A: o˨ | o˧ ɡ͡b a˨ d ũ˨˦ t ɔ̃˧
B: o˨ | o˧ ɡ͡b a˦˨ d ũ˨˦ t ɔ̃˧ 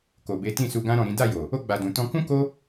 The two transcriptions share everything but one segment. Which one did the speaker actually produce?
A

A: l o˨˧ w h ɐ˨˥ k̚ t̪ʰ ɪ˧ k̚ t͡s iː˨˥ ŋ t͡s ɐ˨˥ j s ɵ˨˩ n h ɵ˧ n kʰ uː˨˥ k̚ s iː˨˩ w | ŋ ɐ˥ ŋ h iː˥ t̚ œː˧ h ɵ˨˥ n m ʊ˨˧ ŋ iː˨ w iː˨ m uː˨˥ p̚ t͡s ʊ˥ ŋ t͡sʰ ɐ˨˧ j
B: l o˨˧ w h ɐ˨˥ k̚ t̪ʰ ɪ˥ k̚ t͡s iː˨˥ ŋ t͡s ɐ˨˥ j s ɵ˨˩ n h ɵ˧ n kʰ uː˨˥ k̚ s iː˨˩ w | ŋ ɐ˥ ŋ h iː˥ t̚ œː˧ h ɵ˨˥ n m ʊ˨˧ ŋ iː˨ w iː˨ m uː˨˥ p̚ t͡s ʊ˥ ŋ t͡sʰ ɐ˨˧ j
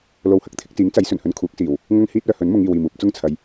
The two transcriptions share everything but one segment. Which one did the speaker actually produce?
A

